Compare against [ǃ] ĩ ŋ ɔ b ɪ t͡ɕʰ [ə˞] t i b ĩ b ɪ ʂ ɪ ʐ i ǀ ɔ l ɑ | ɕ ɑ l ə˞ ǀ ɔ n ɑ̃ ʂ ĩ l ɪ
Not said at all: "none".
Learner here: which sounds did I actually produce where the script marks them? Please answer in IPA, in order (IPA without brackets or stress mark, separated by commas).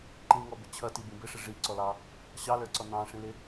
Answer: ǃ, ʌ